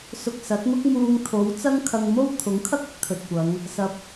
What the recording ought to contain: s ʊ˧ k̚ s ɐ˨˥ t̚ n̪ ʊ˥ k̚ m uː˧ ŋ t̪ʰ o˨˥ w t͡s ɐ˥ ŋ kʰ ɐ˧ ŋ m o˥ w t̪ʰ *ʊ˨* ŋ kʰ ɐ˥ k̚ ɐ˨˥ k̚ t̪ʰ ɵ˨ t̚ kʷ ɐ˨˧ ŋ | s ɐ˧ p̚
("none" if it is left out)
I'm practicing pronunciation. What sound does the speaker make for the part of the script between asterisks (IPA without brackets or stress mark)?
ʊ˨˥